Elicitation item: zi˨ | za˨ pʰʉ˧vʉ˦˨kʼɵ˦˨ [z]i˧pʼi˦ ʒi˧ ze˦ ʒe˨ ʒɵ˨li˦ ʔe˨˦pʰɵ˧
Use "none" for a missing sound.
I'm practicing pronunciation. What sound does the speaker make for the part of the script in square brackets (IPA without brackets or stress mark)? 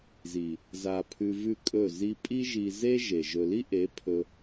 z